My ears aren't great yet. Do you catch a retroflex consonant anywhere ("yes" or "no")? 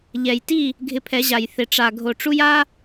yes